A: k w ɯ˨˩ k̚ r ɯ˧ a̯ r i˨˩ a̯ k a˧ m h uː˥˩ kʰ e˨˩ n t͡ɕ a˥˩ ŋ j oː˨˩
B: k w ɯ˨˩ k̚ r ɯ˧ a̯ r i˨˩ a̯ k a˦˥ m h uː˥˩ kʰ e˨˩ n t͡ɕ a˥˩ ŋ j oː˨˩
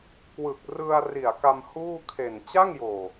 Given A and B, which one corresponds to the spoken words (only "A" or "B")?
A